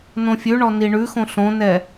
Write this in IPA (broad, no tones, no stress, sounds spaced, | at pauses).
n õ fʲ ʉ ɳ ɔ n i ɳ ʉ x õ ɬ õ n ɛ